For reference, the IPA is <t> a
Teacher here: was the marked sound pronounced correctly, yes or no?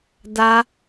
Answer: no